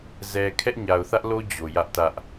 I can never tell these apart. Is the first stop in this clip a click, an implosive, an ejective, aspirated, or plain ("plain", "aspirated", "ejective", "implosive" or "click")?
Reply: aspirated